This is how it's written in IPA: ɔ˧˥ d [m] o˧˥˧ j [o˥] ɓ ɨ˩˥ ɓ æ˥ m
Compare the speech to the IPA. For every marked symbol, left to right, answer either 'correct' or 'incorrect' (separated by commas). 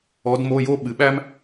correct, correct